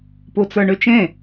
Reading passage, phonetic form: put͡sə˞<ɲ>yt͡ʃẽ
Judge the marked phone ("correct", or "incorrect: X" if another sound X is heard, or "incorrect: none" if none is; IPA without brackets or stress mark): incorrect: ɳ